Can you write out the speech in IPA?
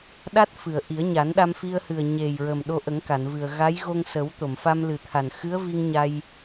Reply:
ɗ a˦˥ t̚ f ɨ˨˩˨ ə̯ ʔ i˨˩˦ ə̯ ɲ a˨˩˦ n ɗ a˧ m f i˧ ə̯ h ɨ˨˩ ə̯ ɲ e˨˩ j ɹ ə˨˩ m ɗ o˧ ʔ ə˨˩˦ ŋ k a˨˩˨ n v ɨ˨˩ ə̯ ɣ a˧˥ j ɣ o˧ ŋ s ə˨˩˦ w t̪ o˨˩˨ m f a˧ m l ɨ˨˩ t̪ʰ a˨˩ n x ɨ˧˥ ə̯ v i˧ ŋ ɲ a˧ j

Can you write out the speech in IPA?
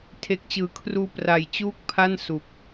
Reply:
tʰ e˨˩ k̚ t͡ɕ ɯː˩˦ kʰ r uː˧ p r a˨˩ j t͡ɕ uː˥˩ k̚ pʰ a˥˩ n s u˨˩ k̚

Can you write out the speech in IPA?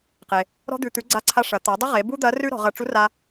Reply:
q e˩ | ɾ ɔ̤˧ d̪ ʉ˩ t̪ ʉ˩˧ ɡ͡ǀ a˧ ǀʰ a˧ ʂ ɐ˩˧ t̪ a˩˧ dˤ ɐ˥ ʁ e˩˧ b u˥ d̪ ɐ˧˥ r ʉ˥ ɾ ɔ̤˩˧ ʁ ɐ˧ ʈ͡ʂ u˧˥ r a˧

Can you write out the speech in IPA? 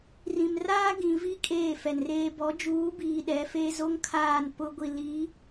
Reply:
r ĩ˨ m r aː˦ ɡ ĩ˨ v i˦ kʼ eː˦˨ f ɛ˨ n r eː˦ b ɔ˨˦ d͡ʒ uː˨˦ b iː˨ ɗ ɛ˨˦ f e˦ z o˦ ŋ kʰ aː˦˨ n p ʊ˦ ɡʷ i˨ l i˨˦

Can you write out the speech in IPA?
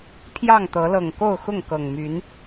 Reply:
pʰ j ɑ˥˨ ŋ t̪ ɤ˨˦ l ɤ˨˩ ŋ k o˥˨ ʊ̯ x ʊ˥˨ ŋ k ɤ˨˩ ŋ m y˨˦ n

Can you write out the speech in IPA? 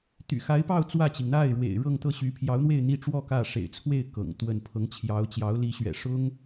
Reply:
t̪ y̰˨˩ x a˧˥ ɪ̯ p ɑ˥˧ ʊ̯ t͡s w ä˥˩ t͡ɕ i˩ ŋ n̪ a˥˩ ɪ̯ ɻ w ḛ˨˩ ɪ̯ ɻ ɤ˥˧ ŋ t̪ ɤ˥˩ ɕ y˧˥ pʰ j ɑ˧˥ ʊ̯ n̪ w e˥˧ ɪ̯ n̪ i˥˧ ʈ͡ʂ w ɔ˥˧ k ä˥˩ ʂ ḛ˨˩ ɪ̯ t͡sʰ w e˥˩ ɪ̯ k ɤ̰˨˩ ŋ t̪ w ə˥˩ n pʰ ɤ˧˥ ŋ t͡ɕʰ j ɑ˧˥ ʊ̯ t͡ɕ j ɑ˧˥ ʊ̯ l i˧˥ ɕ ɥ ɛ̰˨˩ ʂ ʊ˥ ŋ

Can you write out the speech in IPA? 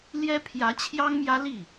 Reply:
l j ɛ˥ pʰ j ä˧˥ t͡ɕʰ j ɑ˥ ŋ m j ä˥ l i˥˩

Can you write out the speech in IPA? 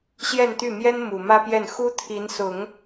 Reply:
ɕ j ɛ˥˧ n t̪ y˥˩ m j ɛ˥ n m u˨˩ m ä˥ p j ɛ˥˩ n x u˥ t̪ʰ i˧˥ n s ʊ˨˩˦ ŋ

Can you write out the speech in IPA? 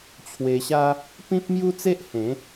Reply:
t͡ɕʰ w e˧ ɕ a˦ | p ĩ˦ p̚ m j u˦ t͡s e˦ ʔ h ẽ˨˦

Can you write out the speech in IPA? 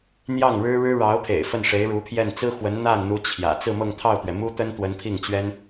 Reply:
n̪ j ɑ˥˩ ŋ ɻ ɻ̩˥ ɻ ɻ̩˥ ɻ ɑ˧˥ ʊ̯ pʰ ḛ˨˩ ɪ̯ f ə˥˩ n ʂ e˧˥ ɪ̯ ɻ u˧˥ pʰ j ɛ˥˩ n t͡s ɹ̩˥ x w ə˧˥ n n̪ a˥˩ n n̪ u˧˥ t͡ɕʰ j ä̰˨˩ t͡s ɹ̩˥˧ m ɤ˥˧ ŋ t̪ʰ ɑ˥˩ ʊ̯ t̪ ɥ ɛ˩ m u˥ t̪ ə˥ n t̪ w ə˧˥ n pʰ i˥˩ ŋ t͡ɕ ɥ ɛ˥ n

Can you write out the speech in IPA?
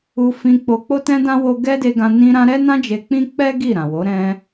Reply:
u˧ f ĩ˧ k͡p o˧ k͡p o˦ t ɛ̃˦ d ã˦ w o˦ ɡ ɛ˦ d e˧ ɡ ã˧ n ĩ˧ ɾ ã˧ ɾ ɛ˦ n ã˦ d͡ʒ e˧ k͡p ĩ˦ k͡p ɛ˦ ɡ i˦˨ ɾ ã˨ w o˨˦ ɾ ɛ̃˧

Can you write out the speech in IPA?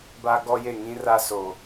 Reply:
b a˦ ɡ ɔ˦ j e˦˨ ŋ ĩ˦ r a˦ s o˨

